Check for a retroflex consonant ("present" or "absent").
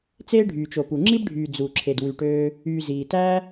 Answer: present